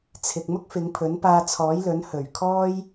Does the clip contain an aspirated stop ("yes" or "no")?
yes